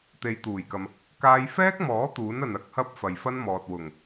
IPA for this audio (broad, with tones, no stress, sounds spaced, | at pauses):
t̪ e˨ j t̪ uː˨˩ j k ɐ˨ m | k aː˧ j f ɛː˥ k̚ m ɔː˨˥ t̪ uː˨˥ n ɐ˨ n ɐ˨˥ k̚ h ɐ˧ p̚ f ɐ˨ j f ɐ˥ n m ɔː˨ t̚ w ʊ˨˩ ŋ